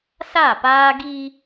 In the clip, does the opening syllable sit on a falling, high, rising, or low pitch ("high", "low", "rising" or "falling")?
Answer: falling